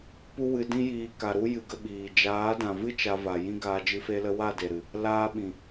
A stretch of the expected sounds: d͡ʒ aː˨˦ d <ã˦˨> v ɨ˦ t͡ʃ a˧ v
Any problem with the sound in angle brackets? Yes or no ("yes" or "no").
yes